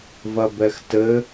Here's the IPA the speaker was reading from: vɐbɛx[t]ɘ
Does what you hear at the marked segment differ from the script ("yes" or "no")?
no